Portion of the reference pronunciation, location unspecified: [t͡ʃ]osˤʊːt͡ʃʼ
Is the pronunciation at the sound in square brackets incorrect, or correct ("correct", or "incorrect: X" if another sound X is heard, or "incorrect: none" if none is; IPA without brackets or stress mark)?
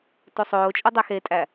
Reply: incorrect: t